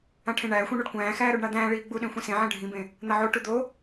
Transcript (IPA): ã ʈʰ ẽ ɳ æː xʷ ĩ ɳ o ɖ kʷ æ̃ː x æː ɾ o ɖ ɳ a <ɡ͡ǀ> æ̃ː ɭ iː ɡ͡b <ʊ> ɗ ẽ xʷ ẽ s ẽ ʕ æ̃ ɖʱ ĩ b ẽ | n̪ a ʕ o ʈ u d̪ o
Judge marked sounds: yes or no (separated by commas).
no, no